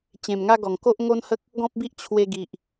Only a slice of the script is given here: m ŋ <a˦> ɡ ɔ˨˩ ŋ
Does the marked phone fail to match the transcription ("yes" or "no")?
no